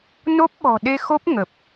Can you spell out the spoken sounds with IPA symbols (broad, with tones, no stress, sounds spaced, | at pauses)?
n o˦˥ p̚ ɓ ɔ̤˨˩ ɗ e˧ x o˦˥ p̚ ŋ ə˨˩ p̚